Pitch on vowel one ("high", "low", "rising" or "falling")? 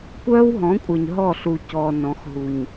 high